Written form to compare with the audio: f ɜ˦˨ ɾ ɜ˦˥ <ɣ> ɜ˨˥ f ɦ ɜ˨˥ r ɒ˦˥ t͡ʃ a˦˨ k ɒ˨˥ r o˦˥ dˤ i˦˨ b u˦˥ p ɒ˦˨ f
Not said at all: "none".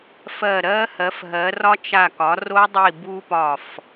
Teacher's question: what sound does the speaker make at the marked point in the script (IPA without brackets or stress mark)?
h